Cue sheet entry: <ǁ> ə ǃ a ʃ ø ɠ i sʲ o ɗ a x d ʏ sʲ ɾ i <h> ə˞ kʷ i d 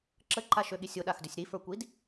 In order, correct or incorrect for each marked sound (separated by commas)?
correct, incorrect